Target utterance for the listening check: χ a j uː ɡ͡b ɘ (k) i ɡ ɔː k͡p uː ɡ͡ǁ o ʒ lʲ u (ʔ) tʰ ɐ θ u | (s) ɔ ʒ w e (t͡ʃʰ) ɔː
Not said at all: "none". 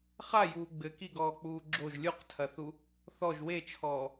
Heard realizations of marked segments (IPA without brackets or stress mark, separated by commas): k, q, θ, t͡ʃʰ